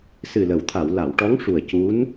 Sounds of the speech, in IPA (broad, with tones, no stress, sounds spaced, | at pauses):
s ɨ˨˩ l ə˨˩˨ w t̪ʰ a˨˩˨ w l a˨˩˨ w ʈ ɔ˧˥ ŋ ʂ u˨˩ ə̯ c u˧˥ n